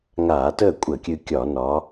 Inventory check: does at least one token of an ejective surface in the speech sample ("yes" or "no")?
yes